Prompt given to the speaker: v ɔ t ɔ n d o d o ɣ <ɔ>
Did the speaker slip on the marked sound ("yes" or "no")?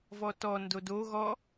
no